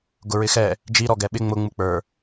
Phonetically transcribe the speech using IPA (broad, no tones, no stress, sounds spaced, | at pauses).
ɡ ʊ ɹ ɪ x ɛ | d͡ʒ i ɾ ɔ ɡ ɛ ɓ ɪ ŋ͡m ʊ ŋ͡m u k͡p ə˞